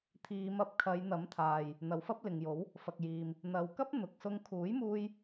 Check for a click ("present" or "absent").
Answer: absent